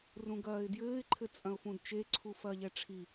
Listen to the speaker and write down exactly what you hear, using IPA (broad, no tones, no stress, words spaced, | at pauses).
rũɡɐːɪ̯djɘːɪ̯ǃʰɘ t͡sʼɐ̃ʊ̯fũdt͡ʃeǀʰu fɐːʎɛʈ͡ʂʰi